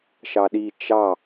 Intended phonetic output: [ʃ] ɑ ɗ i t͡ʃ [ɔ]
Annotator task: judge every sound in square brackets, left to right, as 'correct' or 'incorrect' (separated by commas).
correct, incorrect